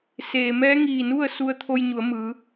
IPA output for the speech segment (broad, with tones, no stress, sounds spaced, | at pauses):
s eː˩ m ɛː˧˥ ŋ iː˧˩ n u˥˨ ə̯ s u˧ ə̯ t̪ʰ o˧ j ɲ u˩˧ ə̯ m ɯː˩˧